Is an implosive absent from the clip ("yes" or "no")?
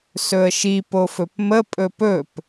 yes